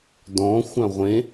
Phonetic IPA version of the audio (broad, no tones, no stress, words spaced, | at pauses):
dɔ̃xʷã ʁʷẽ